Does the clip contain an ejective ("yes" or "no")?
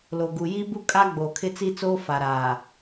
yes